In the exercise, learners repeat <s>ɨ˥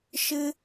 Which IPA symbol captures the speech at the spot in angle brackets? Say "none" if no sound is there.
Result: ʃ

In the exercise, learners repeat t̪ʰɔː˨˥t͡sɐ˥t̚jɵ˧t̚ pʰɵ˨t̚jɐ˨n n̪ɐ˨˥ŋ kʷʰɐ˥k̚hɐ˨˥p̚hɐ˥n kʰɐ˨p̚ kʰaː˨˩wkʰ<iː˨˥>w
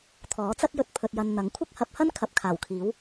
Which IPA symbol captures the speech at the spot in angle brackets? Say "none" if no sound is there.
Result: iː˨˥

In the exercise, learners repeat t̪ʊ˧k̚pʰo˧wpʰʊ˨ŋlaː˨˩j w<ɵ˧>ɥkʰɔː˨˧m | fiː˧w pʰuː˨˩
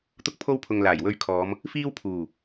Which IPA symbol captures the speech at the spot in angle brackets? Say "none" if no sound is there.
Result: ɵ˧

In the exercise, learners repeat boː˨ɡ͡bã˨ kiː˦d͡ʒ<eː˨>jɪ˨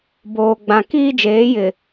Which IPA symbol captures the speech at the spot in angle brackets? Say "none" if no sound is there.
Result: eː˨˦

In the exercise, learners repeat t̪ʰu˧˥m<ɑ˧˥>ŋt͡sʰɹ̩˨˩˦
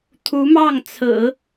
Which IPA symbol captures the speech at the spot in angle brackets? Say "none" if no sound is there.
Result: ɑ˥˩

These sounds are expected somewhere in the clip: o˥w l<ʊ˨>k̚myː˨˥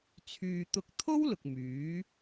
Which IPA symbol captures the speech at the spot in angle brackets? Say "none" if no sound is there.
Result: ʊ˨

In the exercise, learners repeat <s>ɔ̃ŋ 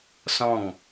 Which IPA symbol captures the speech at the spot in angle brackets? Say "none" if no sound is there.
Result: s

